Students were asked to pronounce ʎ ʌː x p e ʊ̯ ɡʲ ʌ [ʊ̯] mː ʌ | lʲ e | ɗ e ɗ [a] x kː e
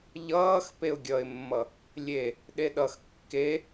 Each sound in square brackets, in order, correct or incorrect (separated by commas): incorrect, incorrect